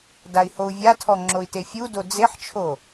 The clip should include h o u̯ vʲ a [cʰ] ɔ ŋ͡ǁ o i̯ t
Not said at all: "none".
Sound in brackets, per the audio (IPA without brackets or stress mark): tʰ